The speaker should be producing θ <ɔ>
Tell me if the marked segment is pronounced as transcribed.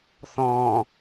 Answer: no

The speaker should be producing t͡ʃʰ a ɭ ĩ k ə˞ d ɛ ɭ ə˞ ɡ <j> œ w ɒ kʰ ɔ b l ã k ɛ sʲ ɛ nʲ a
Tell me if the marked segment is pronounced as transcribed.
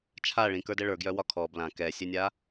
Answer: yes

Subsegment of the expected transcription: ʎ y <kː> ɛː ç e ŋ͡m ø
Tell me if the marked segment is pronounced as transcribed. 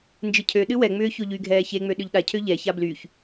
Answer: no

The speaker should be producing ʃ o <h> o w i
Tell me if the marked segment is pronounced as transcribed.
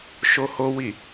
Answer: yes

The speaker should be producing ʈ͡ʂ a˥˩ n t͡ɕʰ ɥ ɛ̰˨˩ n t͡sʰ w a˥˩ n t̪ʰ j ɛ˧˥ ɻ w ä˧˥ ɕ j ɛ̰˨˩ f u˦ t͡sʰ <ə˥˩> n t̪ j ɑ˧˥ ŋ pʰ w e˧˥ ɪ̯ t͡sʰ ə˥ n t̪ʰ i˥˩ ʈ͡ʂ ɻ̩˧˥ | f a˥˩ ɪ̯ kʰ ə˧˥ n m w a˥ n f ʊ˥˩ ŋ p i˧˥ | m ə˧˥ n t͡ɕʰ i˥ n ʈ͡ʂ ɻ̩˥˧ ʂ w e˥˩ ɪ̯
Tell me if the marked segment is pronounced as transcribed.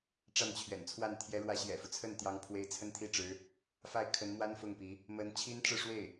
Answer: yes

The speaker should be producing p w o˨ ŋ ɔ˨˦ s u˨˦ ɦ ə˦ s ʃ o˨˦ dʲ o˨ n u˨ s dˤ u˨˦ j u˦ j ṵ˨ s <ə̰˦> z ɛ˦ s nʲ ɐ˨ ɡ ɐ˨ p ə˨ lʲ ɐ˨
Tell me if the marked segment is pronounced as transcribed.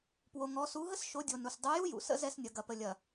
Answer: yes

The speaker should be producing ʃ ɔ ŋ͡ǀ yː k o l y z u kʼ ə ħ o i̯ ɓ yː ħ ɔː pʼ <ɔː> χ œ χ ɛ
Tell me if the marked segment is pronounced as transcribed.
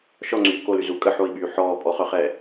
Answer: no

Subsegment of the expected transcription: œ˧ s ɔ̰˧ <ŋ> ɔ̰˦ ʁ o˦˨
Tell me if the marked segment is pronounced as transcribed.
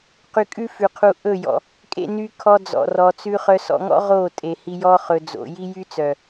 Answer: yes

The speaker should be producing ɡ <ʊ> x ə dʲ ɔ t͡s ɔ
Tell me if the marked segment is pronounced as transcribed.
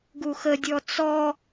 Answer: no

